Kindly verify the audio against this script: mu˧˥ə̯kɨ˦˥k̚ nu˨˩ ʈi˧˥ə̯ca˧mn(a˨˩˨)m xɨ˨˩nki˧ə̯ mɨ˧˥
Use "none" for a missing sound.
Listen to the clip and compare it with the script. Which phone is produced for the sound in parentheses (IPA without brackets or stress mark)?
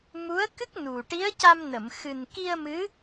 ə˨˩˨